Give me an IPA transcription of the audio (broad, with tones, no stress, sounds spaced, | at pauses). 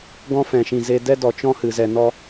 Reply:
ɡ ɔ̃˦ f ɛ̃˨ ʃ ĩ˨ z e˧ d ɛ˦ d ɔ˨ t͡ʃ ɔ̃˦ h ɨ˨ z ɛ˨ n ɔ˧